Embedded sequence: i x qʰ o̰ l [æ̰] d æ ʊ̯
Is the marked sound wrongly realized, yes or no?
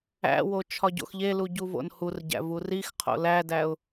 yes